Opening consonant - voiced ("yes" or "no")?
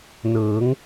yes